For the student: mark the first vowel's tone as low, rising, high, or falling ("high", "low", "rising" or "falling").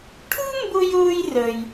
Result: high